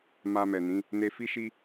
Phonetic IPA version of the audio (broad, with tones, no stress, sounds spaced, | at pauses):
m a˧ m ɛ˨ n ĩ˨˦ | n e˧ f i˦ ʃ i˦